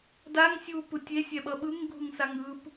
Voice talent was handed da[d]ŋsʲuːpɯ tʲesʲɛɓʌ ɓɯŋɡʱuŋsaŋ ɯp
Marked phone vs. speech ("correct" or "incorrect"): incorrect